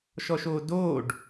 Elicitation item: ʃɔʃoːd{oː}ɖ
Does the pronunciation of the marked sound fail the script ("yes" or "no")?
no